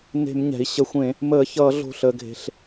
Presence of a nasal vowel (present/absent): present